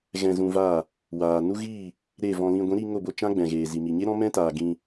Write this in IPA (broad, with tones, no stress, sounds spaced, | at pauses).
ɣ ɛ̃˧ z ũ˧ v aː˦˨ | w aː˨ n u˦ ɣ iː˦˨ | ɾ e˦˨ v ɔ̃˧ l ĩ˧ ɡʷ ĩ˨˦ ɾ i˧ ŋ o˦˨ b o˧ t͡ʃ ã˦ ɡ͡b ɛ̃˨ ɣ eː˨ z i˨ m i˨ ɲ e˦ ɾ ɔ̃˦ m ɛ̃˦ t aː˨ ɡ ĩ˧